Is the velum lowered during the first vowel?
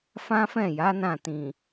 yes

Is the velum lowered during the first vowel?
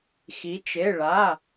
no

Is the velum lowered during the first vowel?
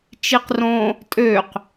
no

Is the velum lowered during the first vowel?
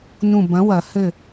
yes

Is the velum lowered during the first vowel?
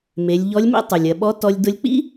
no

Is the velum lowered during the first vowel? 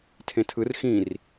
yes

